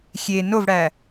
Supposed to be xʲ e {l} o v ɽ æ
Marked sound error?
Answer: yes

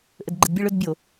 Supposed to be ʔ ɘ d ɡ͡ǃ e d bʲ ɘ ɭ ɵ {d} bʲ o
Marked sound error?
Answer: no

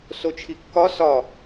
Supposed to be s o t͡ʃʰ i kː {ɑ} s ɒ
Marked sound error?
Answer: yes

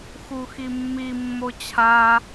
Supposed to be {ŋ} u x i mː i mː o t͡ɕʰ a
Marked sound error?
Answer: yes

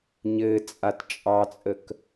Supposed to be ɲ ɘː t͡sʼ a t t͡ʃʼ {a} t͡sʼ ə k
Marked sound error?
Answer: yes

